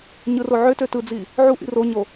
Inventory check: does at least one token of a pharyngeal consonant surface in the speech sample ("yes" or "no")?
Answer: yes